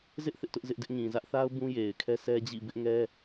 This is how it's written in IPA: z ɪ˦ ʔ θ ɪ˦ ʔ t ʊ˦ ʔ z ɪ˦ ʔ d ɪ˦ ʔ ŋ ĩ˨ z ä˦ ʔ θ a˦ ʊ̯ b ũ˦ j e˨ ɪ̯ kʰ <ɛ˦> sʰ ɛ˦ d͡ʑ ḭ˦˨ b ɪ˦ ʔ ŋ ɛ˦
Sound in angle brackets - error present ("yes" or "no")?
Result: no